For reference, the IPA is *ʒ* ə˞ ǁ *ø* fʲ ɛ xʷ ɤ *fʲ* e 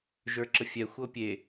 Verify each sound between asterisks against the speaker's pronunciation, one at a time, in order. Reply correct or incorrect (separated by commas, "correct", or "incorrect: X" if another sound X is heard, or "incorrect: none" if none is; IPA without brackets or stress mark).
correct, incorrect: ə, incorrect: pʲ